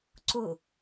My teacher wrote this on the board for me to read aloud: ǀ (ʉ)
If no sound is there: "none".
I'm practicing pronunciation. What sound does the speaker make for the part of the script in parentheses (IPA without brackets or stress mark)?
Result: ʊ